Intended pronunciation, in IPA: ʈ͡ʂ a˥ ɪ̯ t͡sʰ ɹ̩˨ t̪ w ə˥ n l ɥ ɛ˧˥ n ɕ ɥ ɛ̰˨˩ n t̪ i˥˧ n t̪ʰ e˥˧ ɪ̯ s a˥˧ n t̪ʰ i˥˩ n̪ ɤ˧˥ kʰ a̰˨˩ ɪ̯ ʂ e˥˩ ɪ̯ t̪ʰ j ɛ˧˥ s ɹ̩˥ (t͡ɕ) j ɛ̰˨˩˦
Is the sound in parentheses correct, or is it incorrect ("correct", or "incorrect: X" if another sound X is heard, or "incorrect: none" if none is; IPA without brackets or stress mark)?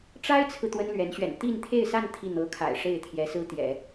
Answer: incorrect: t̪